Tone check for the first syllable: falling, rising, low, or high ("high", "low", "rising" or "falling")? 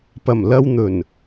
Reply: low